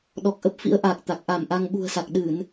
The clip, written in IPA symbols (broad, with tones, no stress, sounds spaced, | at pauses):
ɗ ɔ˨˩ k̚ ʔ ə˦˥ p̚ f ḭ˧˥ ə̯ ʔ aː˨˩ k̚ t̪ a˨˩ k̚ ʔ a˧˩ m ʔ a˧ ŋ ɓ ṳ˨˩ ə̯ s a˨˩ k̚ ɗ ɨ˧˩˨ n